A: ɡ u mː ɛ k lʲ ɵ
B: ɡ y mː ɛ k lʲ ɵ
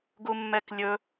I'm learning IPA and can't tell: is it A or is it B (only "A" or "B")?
A